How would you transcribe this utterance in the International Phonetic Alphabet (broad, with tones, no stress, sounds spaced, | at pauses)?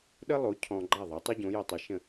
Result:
ɗ ə˥ lˠ o˩˥ cʰ ɔ̃˧ ɡ͡ǃ a˥˩ ðˤ a˩˥ tˤ o˥ ɟ õ˩˥ j ə˧ tˤ ə˩˥ ʃ ə̃˥˩